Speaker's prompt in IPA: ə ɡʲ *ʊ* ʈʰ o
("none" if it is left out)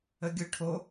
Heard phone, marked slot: ʊ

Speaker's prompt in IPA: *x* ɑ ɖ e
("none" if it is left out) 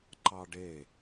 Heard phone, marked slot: ǃ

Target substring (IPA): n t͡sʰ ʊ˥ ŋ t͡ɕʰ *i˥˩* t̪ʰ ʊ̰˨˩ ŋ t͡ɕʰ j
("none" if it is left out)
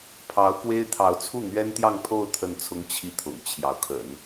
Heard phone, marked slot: i˥˩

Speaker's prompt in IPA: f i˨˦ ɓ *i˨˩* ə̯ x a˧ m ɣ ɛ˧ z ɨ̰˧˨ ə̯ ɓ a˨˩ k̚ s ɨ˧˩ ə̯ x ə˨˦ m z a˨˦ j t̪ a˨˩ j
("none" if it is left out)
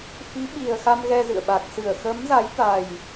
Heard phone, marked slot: i˨˩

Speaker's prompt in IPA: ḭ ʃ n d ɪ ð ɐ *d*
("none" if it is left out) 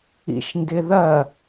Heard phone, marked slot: none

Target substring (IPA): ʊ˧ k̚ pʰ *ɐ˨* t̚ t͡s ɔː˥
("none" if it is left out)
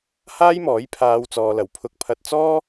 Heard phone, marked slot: ɐ˧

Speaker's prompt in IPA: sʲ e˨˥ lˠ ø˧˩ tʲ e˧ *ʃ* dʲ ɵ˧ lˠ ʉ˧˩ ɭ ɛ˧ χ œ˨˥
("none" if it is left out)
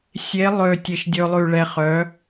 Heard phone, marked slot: ʃ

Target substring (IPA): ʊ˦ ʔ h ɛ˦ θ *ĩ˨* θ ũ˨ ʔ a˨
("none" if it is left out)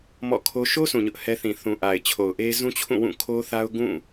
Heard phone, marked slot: ĩ˨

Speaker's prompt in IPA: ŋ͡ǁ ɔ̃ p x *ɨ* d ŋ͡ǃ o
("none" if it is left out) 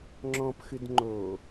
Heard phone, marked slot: ɨ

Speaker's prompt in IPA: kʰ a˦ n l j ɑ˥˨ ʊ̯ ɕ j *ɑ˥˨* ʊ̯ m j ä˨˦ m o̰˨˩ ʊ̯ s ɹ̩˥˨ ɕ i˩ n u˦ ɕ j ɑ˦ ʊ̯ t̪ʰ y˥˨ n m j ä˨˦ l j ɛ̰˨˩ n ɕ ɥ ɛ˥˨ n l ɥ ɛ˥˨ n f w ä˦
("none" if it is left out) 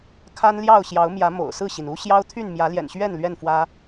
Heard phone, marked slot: ɑ˨˦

